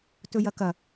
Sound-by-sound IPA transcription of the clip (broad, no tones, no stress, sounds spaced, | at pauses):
t ɵ j ɐ k ɐ